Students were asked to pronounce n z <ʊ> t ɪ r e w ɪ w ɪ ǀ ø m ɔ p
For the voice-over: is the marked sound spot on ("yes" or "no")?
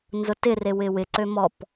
yes